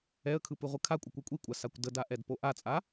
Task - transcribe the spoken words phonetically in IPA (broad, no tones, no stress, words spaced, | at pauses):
ɛə̯kʰɯp ɯʁʷɯkʰakʷʼə kʷɛkʷʼikʷʼa sakʷdəda ʔɛdpoʔat͡sʼa